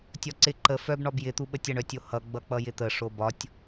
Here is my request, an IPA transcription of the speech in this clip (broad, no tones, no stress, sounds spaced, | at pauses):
tʲ ɒ ǀ ɪ ǃ ə f œ b ɳ ɒ b j ɪ t̪ u ɓ ə tʲ ʌ ɳ œ tʲ o h ʌ ɡ͡b ʌ k͡p ʌ j ɪ t̪ ə ʂ o b ɒ tʲ